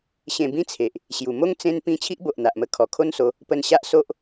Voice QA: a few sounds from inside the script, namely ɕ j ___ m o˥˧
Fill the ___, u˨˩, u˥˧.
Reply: u˨˩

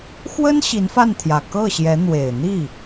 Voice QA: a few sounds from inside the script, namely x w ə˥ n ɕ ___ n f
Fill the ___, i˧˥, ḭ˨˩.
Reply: i˧˥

